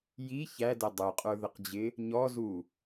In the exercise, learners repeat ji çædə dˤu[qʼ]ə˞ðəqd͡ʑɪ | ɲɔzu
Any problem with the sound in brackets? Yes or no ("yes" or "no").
no